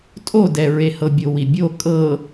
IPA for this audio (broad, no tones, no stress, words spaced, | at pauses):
tʼodɛɹehɤ bʲowibʲo kʼɤ